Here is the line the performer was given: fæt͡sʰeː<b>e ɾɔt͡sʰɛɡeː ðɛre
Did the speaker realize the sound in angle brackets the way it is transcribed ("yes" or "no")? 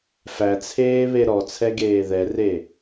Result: no